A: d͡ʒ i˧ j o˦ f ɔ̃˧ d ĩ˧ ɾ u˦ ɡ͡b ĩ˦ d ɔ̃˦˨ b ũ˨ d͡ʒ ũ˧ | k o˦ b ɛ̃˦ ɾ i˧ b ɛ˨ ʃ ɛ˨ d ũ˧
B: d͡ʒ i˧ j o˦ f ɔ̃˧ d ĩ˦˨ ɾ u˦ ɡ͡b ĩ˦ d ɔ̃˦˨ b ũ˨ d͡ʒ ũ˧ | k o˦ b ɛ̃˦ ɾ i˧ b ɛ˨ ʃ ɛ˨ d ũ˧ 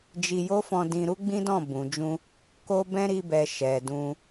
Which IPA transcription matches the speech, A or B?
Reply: A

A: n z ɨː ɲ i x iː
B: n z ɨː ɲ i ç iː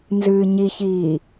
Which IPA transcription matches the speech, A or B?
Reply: B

